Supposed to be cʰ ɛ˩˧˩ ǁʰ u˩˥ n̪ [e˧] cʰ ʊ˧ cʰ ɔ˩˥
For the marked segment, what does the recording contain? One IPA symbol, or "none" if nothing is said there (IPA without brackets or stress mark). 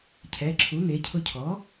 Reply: e˩˥